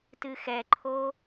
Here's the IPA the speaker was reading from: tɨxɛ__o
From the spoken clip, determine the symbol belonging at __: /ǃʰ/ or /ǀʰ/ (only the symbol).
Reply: ǃʰ